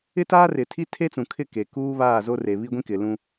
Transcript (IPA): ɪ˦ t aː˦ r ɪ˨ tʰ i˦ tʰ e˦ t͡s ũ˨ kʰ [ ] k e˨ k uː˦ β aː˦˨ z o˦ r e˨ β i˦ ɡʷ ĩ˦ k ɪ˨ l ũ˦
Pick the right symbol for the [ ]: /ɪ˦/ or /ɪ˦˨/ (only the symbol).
ɪ˦˨